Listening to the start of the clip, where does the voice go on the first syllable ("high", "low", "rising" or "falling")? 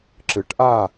rising